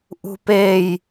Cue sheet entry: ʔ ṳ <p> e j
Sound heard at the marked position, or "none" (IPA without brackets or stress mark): p